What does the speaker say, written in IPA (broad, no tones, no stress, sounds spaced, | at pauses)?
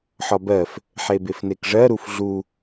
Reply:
ħ ɒ b ɜ f | ħ e b e f n e k ʐ ɜ ɾ u f ɮ u